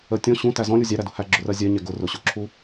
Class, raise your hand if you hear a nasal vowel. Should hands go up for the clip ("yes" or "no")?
yes